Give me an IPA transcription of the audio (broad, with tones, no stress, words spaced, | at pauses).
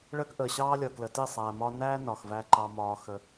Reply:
ɭəː˦kʔəː˨ ɕɑː˦lʲʌː˨klə˨ ti˦˨sˤæː˨mɒː˦ næː˦ nɒ˨xvæ˦ ǃɑ˦mɒː˦ xə˦